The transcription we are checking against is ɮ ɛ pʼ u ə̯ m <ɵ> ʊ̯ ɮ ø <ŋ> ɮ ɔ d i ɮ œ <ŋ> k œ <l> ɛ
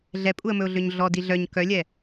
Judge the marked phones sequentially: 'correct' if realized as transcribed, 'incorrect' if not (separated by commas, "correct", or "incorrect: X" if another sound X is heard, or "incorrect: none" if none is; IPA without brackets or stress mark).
correct, incorrect: ɲ, incorrect: ɲ, incorrect: lʲ